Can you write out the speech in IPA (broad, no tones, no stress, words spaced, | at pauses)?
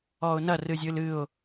ɔʊ̯nɐ rɨzʲɨlɨʊ̯